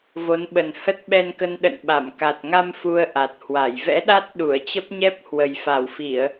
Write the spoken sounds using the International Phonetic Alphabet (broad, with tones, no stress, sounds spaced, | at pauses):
v o˨˦ n ɓ ə˨˩ n h ə˦˥ t̚ ɓ ɛ˧ n k ə˧ n ɗ ə̰˧˨ n ɓ a˧˩ m k a˨˩ t̚ ŋ a˧ m f u˧ ə̯ ʔ a˨˩ t̚ h w a˧˩ j v ɛ̰˧˥ ɗ a˦˥ t̚ ɗ u˧˩ ə̯ t͡ɕ ə˦˥ p̚ ɲ ɛ˦˥ p̚ h w ə˨˩ j f a˧˩ w f i˧˩˨ ə̯